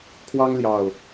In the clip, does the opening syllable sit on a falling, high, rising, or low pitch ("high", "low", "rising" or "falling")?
high